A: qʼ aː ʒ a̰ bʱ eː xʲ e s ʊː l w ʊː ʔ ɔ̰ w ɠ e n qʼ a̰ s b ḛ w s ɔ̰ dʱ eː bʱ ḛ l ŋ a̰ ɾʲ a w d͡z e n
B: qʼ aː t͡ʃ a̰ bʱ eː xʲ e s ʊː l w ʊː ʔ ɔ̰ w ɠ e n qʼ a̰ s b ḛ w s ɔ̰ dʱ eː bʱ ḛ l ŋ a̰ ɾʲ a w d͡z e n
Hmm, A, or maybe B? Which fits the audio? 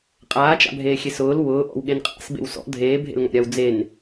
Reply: B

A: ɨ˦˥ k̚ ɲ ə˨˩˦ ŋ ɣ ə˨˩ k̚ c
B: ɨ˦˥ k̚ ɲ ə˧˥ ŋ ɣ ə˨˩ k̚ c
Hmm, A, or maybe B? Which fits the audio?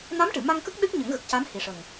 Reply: A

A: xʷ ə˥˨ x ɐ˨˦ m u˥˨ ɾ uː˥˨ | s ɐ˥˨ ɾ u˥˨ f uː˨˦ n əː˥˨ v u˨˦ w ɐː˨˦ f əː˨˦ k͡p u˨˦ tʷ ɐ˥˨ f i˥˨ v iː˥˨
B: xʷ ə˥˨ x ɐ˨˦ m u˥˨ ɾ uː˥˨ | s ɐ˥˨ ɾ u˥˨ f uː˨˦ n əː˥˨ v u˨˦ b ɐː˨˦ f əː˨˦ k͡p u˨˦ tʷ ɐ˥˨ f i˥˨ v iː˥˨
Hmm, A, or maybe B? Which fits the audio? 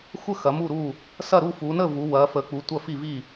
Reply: A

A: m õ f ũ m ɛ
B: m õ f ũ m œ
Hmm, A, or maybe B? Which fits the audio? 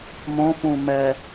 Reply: A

